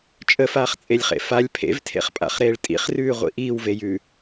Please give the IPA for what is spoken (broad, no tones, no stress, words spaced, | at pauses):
t͡ʃʼəfaːχt͡sʼelʲχḛ falʲ pʰḛvtʰḛχpʼa̰χɾeːɭ tʼḭχrʉːʁʷḭ ʔiːwvejʉ